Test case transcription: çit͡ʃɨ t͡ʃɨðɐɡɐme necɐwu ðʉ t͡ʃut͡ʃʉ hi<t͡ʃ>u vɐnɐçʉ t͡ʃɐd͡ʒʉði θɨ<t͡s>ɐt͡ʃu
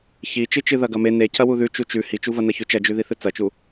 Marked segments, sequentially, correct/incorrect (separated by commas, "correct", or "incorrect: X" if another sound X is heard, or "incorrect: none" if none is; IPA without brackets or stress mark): correct, correct